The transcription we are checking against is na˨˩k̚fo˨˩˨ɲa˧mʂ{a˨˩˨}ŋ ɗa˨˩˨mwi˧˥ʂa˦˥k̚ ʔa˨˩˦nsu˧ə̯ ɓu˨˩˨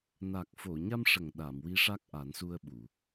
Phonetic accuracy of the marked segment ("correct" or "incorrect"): incorrect